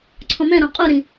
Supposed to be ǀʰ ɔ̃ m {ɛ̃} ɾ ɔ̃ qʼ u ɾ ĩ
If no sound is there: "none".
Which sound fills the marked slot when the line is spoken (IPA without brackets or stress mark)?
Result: ɛ̃